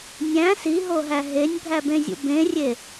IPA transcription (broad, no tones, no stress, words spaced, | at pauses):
nʲæ̃ siɦoɦæ ɦenʲbʱæbẽzʲṵ bẽrʲe